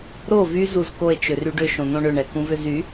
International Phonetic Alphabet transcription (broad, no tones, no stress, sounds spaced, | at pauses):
ɾ o v y z u z k o e̯ t͡ʃ ʏ r y ɖ ʏ ʃ õ n̪ õ ɳ ʏ ɳ ɛ k ũ v ʏ z y